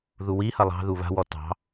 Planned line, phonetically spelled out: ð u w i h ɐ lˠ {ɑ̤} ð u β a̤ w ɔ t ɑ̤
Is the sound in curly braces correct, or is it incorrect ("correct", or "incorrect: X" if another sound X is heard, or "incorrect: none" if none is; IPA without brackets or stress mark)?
correct